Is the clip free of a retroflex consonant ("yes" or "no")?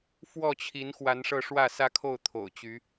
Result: no